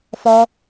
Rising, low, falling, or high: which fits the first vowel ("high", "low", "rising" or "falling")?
high